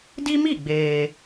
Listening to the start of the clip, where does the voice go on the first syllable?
high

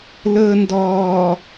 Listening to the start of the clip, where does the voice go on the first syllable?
low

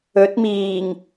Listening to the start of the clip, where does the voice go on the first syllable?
rising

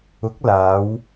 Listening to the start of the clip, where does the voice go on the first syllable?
rising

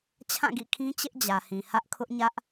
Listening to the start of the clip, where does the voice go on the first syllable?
falling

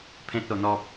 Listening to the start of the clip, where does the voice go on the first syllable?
high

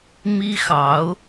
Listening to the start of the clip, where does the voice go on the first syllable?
high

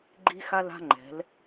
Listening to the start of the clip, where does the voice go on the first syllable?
high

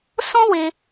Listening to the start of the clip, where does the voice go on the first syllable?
high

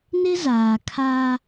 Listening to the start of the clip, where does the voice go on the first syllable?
high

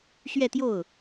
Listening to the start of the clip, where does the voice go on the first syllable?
falling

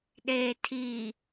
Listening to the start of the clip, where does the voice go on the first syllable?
low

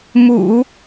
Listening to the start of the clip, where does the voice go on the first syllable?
low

